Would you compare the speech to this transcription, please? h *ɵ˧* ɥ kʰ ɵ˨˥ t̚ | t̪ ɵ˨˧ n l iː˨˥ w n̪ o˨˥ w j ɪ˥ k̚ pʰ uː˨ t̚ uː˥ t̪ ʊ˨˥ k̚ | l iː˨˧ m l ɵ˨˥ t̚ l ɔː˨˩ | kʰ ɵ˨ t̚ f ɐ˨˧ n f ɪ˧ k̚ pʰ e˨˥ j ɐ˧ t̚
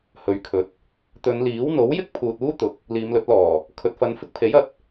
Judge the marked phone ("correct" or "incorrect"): incorrect